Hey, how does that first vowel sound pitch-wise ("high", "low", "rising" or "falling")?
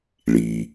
low